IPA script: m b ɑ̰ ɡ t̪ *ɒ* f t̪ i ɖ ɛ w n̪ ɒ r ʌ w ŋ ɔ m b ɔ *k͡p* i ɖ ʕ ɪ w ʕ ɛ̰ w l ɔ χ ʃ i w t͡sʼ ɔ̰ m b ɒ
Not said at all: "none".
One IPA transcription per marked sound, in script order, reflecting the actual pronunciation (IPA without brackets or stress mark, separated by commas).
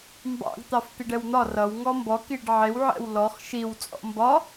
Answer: ɑ, k